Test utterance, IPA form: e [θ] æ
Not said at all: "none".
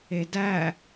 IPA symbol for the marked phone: d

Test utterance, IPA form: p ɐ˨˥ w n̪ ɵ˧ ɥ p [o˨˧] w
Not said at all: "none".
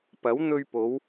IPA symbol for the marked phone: o˨˧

